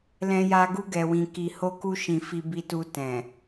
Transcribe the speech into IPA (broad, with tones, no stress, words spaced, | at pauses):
lɛ̃˦ja˦ ɡu˦ɡɛ˧wĩ˧ki˧ ho˦ku˦ ʃĩ˧ fi˧bi˧tu˧ tɛ̃˨